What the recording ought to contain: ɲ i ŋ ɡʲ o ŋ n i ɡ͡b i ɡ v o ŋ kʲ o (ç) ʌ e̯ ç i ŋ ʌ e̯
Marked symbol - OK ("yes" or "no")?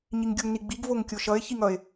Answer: no